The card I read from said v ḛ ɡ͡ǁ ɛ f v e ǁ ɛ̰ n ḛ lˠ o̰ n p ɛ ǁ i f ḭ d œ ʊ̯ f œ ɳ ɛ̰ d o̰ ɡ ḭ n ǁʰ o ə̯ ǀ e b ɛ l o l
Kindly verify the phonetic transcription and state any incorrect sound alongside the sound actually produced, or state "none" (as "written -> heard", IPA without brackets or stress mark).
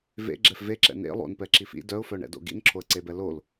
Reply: none